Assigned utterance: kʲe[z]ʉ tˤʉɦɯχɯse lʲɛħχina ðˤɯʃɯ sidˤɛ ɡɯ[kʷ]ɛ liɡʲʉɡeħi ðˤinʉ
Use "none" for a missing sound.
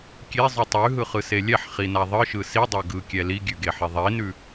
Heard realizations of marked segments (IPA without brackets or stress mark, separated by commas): zˤ, kʲ